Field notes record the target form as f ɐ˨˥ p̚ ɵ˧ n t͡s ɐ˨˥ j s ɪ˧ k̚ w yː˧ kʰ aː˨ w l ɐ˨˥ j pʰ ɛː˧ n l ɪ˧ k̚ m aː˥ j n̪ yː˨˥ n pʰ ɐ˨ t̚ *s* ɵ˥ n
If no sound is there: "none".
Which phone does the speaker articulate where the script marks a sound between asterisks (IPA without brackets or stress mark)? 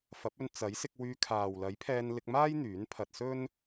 s